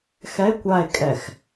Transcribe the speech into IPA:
x ɛ e̯ kʷ a e̯ kʼ ɛ x

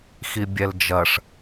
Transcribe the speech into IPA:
x i bʲ ɛ l d͡ʒ ɐ ʂ

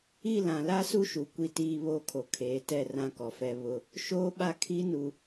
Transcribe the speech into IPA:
i˦˨ l ã˨ l a˦ s u˦ ʃ u˨ kʷ i˦ t iː˦ β oː˦ kʰ o˨ kʰ eː˨˦ t ɛ˦˨ r ã˦ k ɔ˨ f ɛ˦ β ʊ˦ | ʃ oː˦ ɓ a˦ kʰ i˦ n u˨

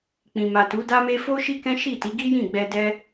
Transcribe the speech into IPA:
k͡p ĩ˨ m a˨ t u˨˦ d a˦ m e˦ f o˦ ʃ i˦ k ɛ̃˦ ʃ i˦˨ t i˨˦ ɡ i˦ j ĩ˦˨ ɡ͡b ɛ˧ d ɛ˦

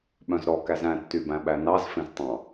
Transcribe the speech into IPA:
ɓ œ̃ z ɾ ɔ k æ z æ̃ tː y b æ̃ ɓ æ n ɑ z f ẽ z tˤ ɑ̃

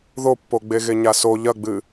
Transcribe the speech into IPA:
ð o pː o ɡ͡b e ɣ e ɲ a s o ʎ ɐ ɡ͡b ɨ

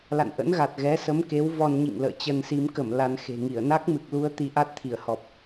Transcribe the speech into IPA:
l a̰˧˨ n ʔ ə̰˧˥ n ɣ a˨˩ t̚ ɣ ɛ˨˦ s ə˨˦ m k e˨˦ w v ɔ˧ n ɲ ḭ˧˨ ŋ l ə̰ː˧˨ t͡ɕ ə˧ n s i˨˦ m k ə˧˩ m l a˧ n x e̤˨˩ ŋ i˧˩ ə̯ n a˦˥ k̚ m ɨ˨˩ k̚ l u˧ ə̯ t̪ i˧ ʔ a˦˥ t̚ t̪ʰ i˧˩ ə̯ h ɔ˨˩ p̚

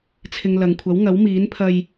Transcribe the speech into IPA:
t͡sʰ ɪ˨ ŋ l ɐ˨ ŋ kʷʰ ɐ˨˥ w ŋ ɐ˨˥ w m iː˨˥ n pʰ ɐ˧ j

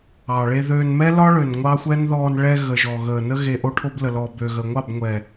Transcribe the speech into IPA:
ɑ˨ ɭ e˧ ð ø˧ n m ɛ˦ l ɒ˦ ɭ ø˨ n ŋʷ ɑ˦ xʷ ɛ˦ n ð ɔː˧ n ɭ ɛ˧ ɣ ə˨ ʒ ɔ˨ ɣ əː˨ n ə˦ ɣ e˧ ʔ o˦ ʈʰ o˦ b l ə˨ l ɔ˨ b ø˨ ɣ ə˨ ŋʷ ɑ˦˨ b ŋʷ ɛ˨

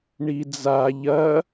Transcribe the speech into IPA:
ɳ i d͡z a ʎ ɐ

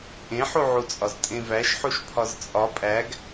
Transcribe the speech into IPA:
ʔ ẽ ħ u ʕ u t͡sʼ ɒ z tʼ ẽ v æ ʃ ħ u ʃ pʰ ɒ z t͡sʼ ɒ pʼ æ ɡ

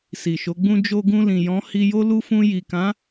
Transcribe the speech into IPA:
s i˨ ʃ o˨˦ ɡ͡b ũ˦ d͡ʒ o˧ ɡ ũ˧ l ĩ˨ j ɔ̃˨˦ h i˧ j o˦ l u˦ f ũ˧ j i˨ k ã˨˦

